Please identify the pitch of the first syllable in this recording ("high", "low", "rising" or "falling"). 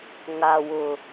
low